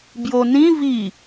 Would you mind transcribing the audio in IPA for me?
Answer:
bjonĩ vi

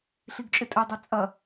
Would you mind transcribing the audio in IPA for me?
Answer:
ɬiɡt͡ʃʼɪtʼɛdˤɛ t͡sʼɐ

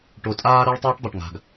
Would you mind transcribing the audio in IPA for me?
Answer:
ʈo˨tʼaː˦ ɾə˞˦ɭ tˤɛː˦ʈdˤo˨ʈ ŋa̤˨ɡ

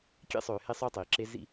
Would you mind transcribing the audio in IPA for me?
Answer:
kʲḛ˦sˤøː˨ he˦sˤø˦tˤiː˨ǁe˦ zḭ˦

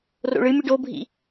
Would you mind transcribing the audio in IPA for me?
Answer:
ro̰ɭɨmʲɨɖ obʱḭ

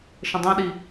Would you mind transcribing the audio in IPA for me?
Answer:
ʃə̃dˤɛ̃ɗi

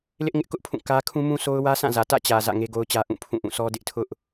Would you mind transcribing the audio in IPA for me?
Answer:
lɪ˦ʔŋɪ˦ʔkʊ˦ʔpʰũ˦˨ kä˦ kʰũ˦mũ˦so˦ʊ̯ wä˦sã˦˨zä˨ tä̰˦˨t͡ɕä˨ zä̰˦˨ŋe˦ɡo˦ʊ̯t͡ɕä˦ ʔũ˦˨pʰũ˦˨ʔũ˦˨sʰɔ˦ dɪ˦ʔtʰʊ˦ʔ

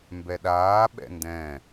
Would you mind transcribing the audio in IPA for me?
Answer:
mbɛɗaː ɓɛ̰ndɛ̃

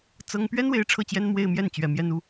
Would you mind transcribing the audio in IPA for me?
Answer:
t͡sɤ˥ŋ pɥɛ˥nwe˧˥ɪ̯ ʈ͡ʂʰɤ˥˩t͡ɕjɛ˥nmwe˥˧ɪ̯mjɛ˥˩n t͡ɕɥɛ˧˥mjɛ˥n u˥

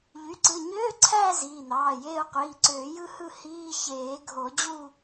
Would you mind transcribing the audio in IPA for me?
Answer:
ʎy˩˧˩ǀɯ˩˧˩ ɲøː˧˥˧ǀʰæː˦˨ ziː˩˧˩n̪ɑː˩˧˩jeː˦˨ʊ̯ qʷiː˩˧˩ǀøː˨˩˦ jɯ˦˨hɯ˦˨ hiː˧˥˧ çeː˨˩˦ɡʱo˨˩˦ d͡ʑu˦˨

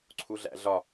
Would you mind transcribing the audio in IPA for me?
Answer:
ǀʰuɮæ̰ɮɒ

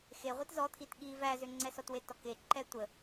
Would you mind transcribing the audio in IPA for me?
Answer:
xeʁʷit zɔ t̪ʰitɠi væzʏŋ͡ǀɛsɔt wetɔke ǃɛtʷə

